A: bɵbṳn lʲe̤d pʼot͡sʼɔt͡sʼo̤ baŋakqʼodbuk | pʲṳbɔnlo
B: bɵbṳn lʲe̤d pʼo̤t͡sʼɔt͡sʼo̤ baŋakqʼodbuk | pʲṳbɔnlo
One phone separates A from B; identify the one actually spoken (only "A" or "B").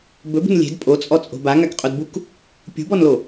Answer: A